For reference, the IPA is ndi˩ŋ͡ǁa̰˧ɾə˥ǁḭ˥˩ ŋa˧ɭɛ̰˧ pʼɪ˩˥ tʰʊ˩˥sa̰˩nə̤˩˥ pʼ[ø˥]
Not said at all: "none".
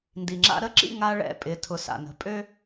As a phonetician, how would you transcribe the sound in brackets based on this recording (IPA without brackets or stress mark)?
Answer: ø˥